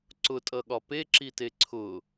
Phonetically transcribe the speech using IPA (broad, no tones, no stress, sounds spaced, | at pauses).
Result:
ǀ ʊ tʼ ʌ ɠ ɒ p e ǁ i t e ǀʰ ʊ